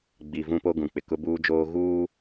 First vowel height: high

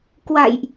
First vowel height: low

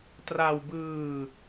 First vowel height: low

